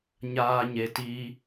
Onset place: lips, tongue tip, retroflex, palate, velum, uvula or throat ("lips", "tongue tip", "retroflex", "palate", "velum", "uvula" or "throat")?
palate